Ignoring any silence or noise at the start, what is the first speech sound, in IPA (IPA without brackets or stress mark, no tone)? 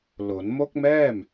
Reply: l